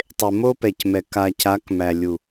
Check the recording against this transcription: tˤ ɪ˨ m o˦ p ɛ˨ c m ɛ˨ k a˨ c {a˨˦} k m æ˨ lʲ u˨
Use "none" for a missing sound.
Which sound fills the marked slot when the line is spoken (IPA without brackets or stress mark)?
a˨˦